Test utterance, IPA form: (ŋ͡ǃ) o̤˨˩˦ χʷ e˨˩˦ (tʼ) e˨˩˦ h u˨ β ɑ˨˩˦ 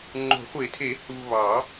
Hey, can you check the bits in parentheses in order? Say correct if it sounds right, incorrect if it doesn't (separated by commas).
correct, incorrect